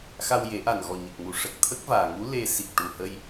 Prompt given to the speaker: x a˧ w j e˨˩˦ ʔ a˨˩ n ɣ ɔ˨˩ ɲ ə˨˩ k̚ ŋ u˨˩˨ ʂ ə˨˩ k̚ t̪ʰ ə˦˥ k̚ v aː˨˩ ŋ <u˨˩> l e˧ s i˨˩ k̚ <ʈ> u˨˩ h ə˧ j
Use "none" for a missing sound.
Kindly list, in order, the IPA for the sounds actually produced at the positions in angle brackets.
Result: u˧˥, ʈ

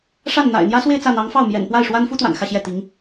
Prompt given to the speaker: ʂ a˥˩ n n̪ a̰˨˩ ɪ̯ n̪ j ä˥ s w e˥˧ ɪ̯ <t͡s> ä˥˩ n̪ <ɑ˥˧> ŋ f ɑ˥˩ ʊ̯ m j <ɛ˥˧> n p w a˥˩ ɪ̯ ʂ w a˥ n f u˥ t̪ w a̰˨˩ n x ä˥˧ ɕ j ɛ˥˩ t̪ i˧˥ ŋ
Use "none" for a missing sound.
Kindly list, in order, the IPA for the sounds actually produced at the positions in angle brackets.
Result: t͡s, ɑ˧˥, ɛ̰˨˩

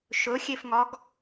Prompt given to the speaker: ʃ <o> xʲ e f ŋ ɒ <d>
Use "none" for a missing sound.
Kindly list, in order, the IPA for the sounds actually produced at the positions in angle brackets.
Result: ɵ, ɡ

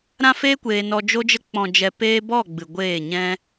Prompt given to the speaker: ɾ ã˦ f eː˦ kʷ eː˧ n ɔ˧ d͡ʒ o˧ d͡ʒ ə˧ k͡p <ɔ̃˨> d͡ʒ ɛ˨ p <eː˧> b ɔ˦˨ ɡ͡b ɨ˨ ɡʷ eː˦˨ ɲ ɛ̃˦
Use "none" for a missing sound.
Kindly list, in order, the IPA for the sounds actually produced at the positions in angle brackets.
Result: ɔ̃˨, eː˧

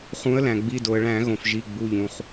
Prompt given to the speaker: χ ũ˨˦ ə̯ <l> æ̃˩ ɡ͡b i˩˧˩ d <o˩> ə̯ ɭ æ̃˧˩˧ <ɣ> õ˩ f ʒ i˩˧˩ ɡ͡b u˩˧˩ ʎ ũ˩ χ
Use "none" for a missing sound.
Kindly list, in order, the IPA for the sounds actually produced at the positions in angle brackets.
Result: l, o˩, ɣ

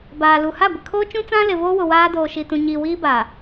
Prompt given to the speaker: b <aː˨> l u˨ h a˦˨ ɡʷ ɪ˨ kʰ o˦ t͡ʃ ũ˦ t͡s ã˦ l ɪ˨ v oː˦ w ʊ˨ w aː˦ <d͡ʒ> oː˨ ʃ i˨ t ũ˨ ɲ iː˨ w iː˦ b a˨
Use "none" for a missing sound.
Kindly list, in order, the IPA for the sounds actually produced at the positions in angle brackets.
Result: aː˨, d

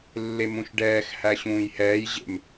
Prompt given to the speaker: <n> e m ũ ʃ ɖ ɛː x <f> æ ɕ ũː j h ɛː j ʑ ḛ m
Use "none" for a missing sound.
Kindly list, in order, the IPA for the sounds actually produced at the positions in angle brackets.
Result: lː, h

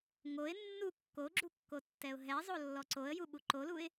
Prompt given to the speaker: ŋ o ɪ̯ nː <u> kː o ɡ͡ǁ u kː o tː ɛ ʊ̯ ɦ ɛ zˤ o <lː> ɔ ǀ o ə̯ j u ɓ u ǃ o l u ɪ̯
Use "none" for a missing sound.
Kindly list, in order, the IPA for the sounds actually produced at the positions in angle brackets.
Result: u, lː

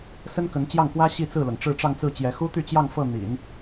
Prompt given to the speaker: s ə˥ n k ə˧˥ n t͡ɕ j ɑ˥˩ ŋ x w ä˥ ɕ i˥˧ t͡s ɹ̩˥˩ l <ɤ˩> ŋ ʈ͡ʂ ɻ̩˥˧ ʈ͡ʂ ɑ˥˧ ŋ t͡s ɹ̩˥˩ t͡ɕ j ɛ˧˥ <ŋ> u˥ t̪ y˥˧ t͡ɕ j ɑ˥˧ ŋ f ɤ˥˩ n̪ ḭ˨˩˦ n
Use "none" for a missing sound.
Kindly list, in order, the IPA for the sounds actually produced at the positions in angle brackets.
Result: ɤ˩, x

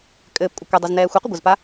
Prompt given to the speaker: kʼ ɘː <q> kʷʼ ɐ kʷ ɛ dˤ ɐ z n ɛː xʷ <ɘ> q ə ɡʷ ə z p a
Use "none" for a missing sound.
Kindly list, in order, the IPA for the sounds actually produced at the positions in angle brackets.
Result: p, ɘ

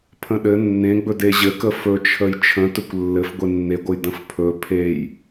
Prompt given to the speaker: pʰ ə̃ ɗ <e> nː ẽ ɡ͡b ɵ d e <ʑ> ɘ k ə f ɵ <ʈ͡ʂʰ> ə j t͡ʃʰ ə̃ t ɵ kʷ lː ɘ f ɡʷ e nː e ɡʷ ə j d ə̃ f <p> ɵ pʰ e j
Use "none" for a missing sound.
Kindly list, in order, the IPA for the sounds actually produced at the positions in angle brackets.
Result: ɘ, ʑ, t͡ʃʰ, pʰ

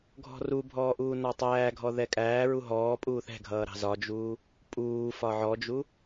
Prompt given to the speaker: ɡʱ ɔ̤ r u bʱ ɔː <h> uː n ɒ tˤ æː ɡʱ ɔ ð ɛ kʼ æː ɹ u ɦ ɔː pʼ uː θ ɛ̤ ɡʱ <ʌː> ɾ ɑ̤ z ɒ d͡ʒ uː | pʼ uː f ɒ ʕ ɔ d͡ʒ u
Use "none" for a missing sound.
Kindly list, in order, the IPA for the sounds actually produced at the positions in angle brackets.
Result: ʔ, ʌː

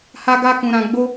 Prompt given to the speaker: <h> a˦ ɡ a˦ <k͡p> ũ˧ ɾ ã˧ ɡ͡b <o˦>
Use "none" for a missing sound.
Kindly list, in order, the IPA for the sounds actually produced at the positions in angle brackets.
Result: h, k, o˦

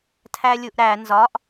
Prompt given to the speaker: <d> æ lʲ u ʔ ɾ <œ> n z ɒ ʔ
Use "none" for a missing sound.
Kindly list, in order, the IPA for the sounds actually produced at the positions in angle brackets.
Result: tʰ, æ

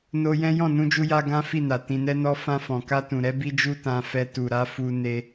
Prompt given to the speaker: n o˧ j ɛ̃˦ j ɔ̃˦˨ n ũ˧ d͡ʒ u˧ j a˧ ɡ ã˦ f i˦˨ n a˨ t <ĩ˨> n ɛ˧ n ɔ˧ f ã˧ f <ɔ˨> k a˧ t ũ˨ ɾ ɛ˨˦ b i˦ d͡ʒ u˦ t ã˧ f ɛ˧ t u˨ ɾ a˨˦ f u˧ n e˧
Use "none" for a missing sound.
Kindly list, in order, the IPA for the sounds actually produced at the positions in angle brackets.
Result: ĩ˨, ɔ̃˨

